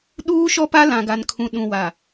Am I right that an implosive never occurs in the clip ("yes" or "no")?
no